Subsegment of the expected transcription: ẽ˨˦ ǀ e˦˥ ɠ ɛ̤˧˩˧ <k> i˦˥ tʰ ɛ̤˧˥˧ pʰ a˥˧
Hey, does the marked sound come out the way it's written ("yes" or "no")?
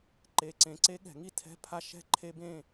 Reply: no